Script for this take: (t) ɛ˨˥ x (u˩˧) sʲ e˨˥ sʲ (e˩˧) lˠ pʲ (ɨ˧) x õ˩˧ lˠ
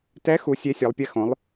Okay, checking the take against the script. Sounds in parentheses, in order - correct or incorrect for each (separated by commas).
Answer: correct, correct, correct, incorrect